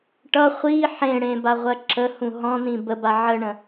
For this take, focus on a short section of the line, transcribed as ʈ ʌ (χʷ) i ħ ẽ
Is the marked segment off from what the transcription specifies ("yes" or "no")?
no